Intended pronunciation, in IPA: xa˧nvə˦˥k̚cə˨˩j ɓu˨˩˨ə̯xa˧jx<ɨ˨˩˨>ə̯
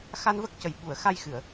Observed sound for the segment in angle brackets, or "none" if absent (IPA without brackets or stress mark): ɨ˨˩˨